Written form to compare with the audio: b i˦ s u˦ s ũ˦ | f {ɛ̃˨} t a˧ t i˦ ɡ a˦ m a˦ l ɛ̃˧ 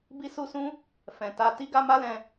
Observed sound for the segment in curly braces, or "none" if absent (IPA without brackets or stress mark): ɛ̃˨